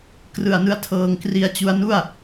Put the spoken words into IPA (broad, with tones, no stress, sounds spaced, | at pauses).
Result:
k r ɯ˨˩ a̯ n ɯ˧ a̯ tʰ ɤː˧ ŋ k r i˧ a̯ t͡ɕ u˦˥ a̯ n u˥˩ a̯